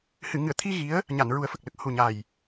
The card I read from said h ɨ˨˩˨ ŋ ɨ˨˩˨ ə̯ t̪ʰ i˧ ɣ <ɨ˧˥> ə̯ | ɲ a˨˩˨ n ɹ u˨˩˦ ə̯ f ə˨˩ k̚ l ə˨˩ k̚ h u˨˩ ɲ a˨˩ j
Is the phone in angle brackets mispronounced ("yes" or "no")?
yes